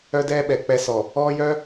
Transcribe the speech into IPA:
œ˦ d ɛː˦ ɓ ɛ˨ k͡p ɛ˦ s ɔ˨ | ɔː˦ j œ˦

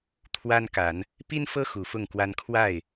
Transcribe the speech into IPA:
t̪ʰ w a˦ n k a˨˦ n | p i˦ n f ɤ˦ x u˨˦ f ʊ˥˨ ŋ k w a˦ n kʰ w a˥˨ ɪ̯

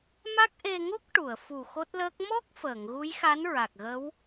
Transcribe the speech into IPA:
m a˦˥ k̚ ʔ e˧ ŋ o˦˥ k̚ ʈ u˨˩˨ ə̯ f u˨˩ x o˦˥ t̚ l əː˦˥ k̚ m ɔ˦˥ k̚ f əː˨˩˨ ŋ ɣ u˧˥ j x a˧˥ n ɹ a˨˩ k̚ ɣ ə˧˥ w

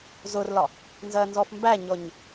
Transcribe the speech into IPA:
z ʊ r l ɒ | n z ɜ n z ɔ f m b æ ɲ ɔ ɲ

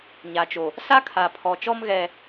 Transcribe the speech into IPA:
ɲ a˨ t͡ʃ o˨ | s a˦ kʰ a˨ pʰ ɔ˨ t͡ʃ ɔ˦ m ɣ ɛ˨

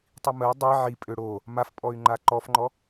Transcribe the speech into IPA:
tˤ i m ə j dˤ i ʕ i pʼ ø ɽ o | m a f pʼ ɔ y̯ ŋ͡ǃ a ǃ ɔ f ŋ͡ǃ ɔ

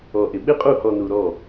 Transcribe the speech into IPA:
ɔ˨ ʔ ɪ˨ ɓ ɪ˦ qʼ u˦˨ h ɔ˨ n u˨ ɾ ɔ˦˨

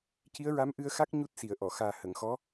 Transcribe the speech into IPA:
c i˧˥ ə̯ ɹ a˧˥ m ʔ ɨ˧ ə̯ x a˦˥ k̚ ɲ u˦˥ t̚ s i˨˩˨ ə̯ ʔ ɔ˨˩˨ x aː˨˩ h ə˨˩˨ ŋ x ɔ˧˥

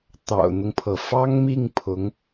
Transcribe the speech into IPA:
t̪ ɑ̰˨˩ ʊ̯ n̪ ʊ˦ ŋ pʰ ɤ˩ f ɑ˥ ŋ m i˥˩ ŋ pʰ ʊ˧˥ ŋ

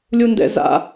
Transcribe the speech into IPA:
lʲ u n d ɛ̰ z a̰

